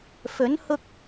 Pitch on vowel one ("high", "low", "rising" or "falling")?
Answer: rising